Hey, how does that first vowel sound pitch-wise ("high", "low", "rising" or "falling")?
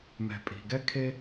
low